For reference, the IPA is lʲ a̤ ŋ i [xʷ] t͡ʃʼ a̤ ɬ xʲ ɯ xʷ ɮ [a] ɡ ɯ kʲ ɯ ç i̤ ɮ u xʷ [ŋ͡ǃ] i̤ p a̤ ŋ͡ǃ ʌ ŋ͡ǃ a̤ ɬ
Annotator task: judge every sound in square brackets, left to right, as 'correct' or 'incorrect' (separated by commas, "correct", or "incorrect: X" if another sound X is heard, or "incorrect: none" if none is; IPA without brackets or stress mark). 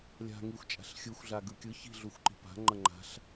correct, correct, incorrect: ǃ